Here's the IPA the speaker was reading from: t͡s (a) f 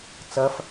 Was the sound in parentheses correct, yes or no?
no